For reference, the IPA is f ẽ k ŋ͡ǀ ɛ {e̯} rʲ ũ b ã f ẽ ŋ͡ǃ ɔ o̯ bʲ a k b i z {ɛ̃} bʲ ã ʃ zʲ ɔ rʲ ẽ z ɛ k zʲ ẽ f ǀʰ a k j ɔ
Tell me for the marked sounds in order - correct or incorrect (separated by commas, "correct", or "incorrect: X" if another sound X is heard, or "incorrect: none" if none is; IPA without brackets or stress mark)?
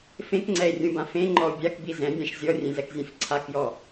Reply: correct, correct